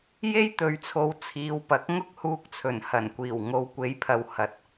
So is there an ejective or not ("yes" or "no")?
no